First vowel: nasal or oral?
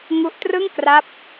oral